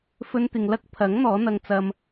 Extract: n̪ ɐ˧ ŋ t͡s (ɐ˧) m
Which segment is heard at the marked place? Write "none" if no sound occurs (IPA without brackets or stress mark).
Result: ɐ˧